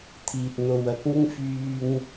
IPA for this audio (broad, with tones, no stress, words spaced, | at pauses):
t̪ʰiː˨t̚n̪o˨wɐ˨˥k̚ŋɪ˥ŋ fyː˧ŋ